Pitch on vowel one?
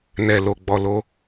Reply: low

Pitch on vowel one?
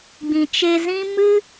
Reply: low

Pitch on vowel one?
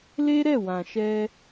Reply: high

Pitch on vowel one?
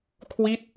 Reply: falling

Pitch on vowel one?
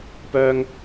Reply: high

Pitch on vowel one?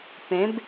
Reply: rising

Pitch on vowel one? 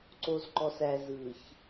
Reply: low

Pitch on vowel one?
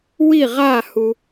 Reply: falling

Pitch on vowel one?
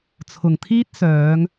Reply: low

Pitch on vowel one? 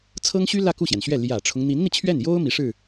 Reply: high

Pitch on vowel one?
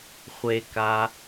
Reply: low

